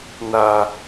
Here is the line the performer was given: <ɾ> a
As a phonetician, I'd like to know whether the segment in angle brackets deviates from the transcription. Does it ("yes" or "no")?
yes